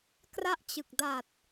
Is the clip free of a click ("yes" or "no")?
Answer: yes